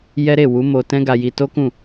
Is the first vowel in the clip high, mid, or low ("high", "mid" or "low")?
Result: mid